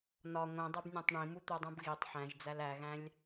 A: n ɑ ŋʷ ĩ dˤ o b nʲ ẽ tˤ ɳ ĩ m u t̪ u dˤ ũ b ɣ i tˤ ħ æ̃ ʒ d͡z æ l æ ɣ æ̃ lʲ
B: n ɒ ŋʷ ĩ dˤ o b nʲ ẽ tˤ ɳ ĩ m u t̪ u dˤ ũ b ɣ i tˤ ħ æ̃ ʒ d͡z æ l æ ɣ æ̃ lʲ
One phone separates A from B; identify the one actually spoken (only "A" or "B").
B